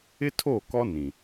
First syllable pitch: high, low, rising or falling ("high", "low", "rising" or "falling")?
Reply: high